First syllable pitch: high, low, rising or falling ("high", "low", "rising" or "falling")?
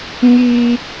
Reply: high